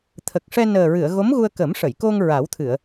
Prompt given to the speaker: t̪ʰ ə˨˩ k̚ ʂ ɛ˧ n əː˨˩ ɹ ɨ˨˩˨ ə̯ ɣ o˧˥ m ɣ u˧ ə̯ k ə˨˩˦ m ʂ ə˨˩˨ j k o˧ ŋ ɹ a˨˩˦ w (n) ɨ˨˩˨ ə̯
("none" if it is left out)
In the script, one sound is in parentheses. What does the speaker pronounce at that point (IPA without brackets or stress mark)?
t̪ʰ